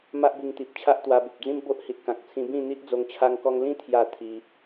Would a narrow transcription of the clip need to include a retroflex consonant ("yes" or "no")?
no